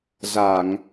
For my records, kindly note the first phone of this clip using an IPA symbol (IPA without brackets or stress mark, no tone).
z